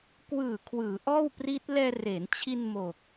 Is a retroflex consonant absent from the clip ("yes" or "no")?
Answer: yes